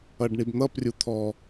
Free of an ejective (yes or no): yes